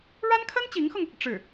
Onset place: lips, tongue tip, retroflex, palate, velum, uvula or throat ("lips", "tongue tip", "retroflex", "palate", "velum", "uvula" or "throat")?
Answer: retroflex